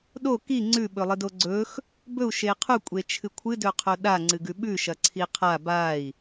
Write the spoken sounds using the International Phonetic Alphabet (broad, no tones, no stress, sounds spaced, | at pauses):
ɗ o k i ŋ͡ǀ ʉ ɓ ɵ lˠ ɨ d o ɡ͡ǀ ɵ x | b ɵ u̯ ʃ e qʰ u kʷʼ e t͡ʃʰ ɨ kʷʰ ɨ d ɵ qʰ o ɗ a ŋ͡ǀ ɨ ɡ ʉ ɓ ʉ ʃ ɐ ǀʰ i qʰ a b a i̯